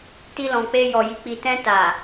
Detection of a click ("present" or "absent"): absent